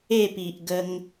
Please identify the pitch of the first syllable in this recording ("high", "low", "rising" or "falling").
falling